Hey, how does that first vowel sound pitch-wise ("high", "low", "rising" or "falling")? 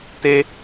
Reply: high